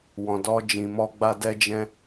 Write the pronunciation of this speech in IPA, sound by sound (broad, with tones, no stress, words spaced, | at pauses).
wɔ̃˨dɔ˧d͡ʒĩ˨mɔ˧ ɡ͡ba˧ dɛ˧ d͡ʒɛ̃˧